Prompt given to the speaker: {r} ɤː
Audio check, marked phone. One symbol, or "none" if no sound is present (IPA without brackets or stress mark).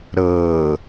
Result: ɾ